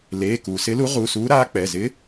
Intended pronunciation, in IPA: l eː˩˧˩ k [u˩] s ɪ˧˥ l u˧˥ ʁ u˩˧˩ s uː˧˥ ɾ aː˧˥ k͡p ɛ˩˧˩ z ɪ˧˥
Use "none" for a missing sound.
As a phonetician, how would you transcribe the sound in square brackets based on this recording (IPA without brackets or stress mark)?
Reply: uː˩